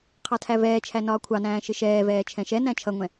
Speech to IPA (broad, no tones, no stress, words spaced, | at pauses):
qʰɑtʰævɛːt͡ʃʰæ nɒːkʷʰɑnæ̃ː ʃɪʃɛːvɛː t͡ʃʰɛ̃ʃɛnæ̃ t͡ʃʰʌŋʷɛ̃